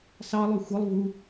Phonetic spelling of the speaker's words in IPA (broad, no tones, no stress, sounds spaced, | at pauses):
s ɑ lˠ ø xʷ ɯ lˠ v u